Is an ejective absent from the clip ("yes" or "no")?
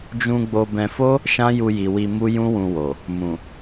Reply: yes